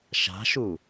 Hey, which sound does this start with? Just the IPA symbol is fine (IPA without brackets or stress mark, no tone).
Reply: ʃ